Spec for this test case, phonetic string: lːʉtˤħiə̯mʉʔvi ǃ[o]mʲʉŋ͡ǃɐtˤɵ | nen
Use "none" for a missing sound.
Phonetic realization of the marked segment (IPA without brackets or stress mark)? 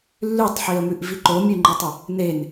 o